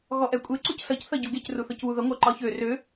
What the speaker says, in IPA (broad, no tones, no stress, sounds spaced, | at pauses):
ɣ ɔ ʔ ɛ kʷʼ e ǀ u c s ʌ c θ ʌ ɟ u ɡ e c r u θ ɔ c β u ð ʌ ŋʷ ɜ ǃ ɒ ç ø r ø